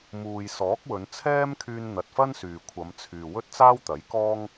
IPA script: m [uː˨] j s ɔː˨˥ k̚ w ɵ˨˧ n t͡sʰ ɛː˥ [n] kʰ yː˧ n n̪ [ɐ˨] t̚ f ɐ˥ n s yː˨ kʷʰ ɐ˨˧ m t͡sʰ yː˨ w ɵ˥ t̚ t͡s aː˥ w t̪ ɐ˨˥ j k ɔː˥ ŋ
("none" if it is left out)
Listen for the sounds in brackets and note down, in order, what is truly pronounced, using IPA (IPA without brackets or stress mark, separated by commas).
uː˨, m, ɐ˨